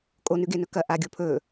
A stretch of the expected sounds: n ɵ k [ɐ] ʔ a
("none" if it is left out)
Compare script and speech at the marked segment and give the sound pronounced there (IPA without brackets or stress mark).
ɐ